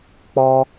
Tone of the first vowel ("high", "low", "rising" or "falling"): high